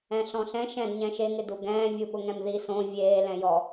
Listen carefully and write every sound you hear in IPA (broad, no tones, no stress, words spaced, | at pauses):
ɛ̃ɬɔ̃ɬɛ̃ ʃɛ̃d ɲɛ̃ʃe ŋɪduɡɛ̃ː vʲuɓʊŋɛ̃mði sõ vʲeː lɛ̃jɔ